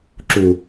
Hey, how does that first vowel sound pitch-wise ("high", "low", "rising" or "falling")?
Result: low